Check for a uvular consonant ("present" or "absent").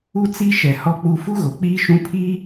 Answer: absent